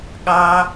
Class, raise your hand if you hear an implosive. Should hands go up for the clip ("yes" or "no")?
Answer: yes